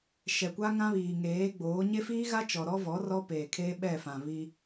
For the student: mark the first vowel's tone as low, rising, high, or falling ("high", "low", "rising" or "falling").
low